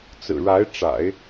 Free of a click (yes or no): yes